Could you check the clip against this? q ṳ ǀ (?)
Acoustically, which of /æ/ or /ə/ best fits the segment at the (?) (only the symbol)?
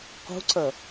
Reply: ə